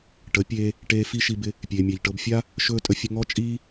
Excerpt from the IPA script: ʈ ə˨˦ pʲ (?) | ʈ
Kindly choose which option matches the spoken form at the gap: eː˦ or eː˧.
eː˧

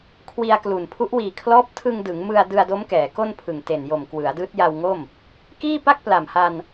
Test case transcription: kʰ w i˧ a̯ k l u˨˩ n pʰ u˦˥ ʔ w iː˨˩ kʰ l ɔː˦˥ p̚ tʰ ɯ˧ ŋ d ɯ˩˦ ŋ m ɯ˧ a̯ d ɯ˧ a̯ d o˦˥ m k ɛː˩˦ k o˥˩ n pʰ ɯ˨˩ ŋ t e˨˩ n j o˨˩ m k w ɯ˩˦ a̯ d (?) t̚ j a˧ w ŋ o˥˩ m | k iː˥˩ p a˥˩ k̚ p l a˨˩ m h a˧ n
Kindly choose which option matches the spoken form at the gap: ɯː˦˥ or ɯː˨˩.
ɯː˦˥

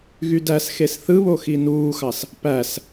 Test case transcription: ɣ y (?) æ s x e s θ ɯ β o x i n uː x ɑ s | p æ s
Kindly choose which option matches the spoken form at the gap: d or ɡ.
d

